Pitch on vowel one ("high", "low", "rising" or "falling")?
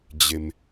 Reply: high